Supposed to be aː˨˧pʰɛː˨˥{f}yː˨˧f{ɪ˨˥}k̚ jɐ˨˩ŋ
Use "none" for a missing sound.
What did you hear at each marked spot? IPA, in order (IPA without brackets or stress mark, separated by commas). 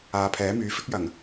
m, ɪ˥